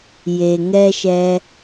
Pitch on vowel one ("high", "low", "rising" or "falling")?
low